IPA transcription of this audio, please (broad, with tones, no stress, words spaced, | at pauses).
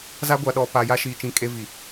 za˦ɡʷa˨ɗɔ˨ pa˨ja˦ ʃiː˨t͡ʃĩ˨ kʼe˦vi˨